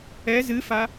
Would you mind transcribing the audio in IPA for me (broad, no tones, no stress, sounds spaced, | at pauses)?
ɛ z ɨ f a